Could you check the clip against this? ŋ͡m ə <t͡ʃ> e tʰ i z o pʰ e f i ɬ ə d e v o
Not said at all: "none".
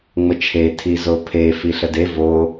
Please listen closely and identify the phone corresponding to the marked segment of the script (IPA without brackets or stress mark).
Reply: t͡ʃʰ